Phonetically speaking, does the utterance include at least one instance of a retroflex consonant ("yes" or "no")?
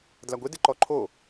no